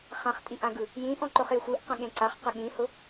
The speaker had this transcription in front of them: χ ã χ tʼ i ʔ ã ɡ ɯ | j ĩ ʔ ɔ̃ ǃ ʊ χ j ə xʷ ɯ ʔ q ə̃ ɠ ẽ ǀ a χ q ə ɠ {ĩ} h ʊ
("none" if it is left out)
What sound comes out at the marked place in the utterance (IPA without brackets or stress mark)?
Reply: ĩ